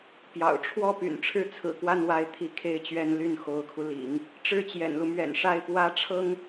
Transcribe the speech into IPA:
pjɑ̰˨˩ʊ̯ ʈ͡ʂʰwɔ˥˩ py̰˨˩nʈ͡ʂʰɻ̩˥˩t͡sʰɹ̩˨˩kwa˥˧n wa˥˧ɪ̯t̪ʰi˥˩kʰe˥ɪ̯t͡ɕɥɛ˥n ly˥˩nxo˧˥ʊ̯kʰu˧lḭ˨˩˦ŋ | ʈ͡ʂɻ̩˥˩t͡ɕjɛ̰˨˩nlu˦mɥɛ̰˨˩n ʂa˥˩ɪ̯pwä˥ ʈ͡ʂʰɤ˥ŋ

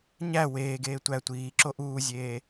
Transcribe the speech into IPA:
ɲæ weːɡeː tʷæ tʷiːǁo ʔuːzʲeː

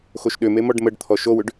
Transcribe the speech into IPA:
xoʃɗʏme mɔɖməɖ t̪ʰɔʃowʏɖ

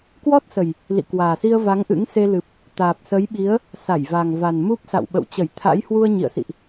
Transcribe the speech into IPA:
kwɔ˦˥t̚sə˨˩j | lḭ˧˨kwaː˨˩si˧ə̯ va˨˦ŋʔɨ̰˧˥ŋ se˧lɨ˨˩p̚ | t̪aː˨˩p̚sə˨˦jɓi˨˦ə̯ | sa˧˩jva˨˩ŋ va˨˩nmu˦˥p̚ sa̰˧˨wɓə̰˧˨wt͡ɕə˧˩j t̪ʰa̰˧˥jhwu˧ə̯ ɲḭ˧˨ə̯sḭ˧˨ʔ

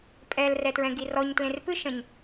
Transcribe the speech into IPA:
pʼɛl rɛtɹɛ̃ɡirɔɲ tlẽrpɨʃɐ̃ɲ

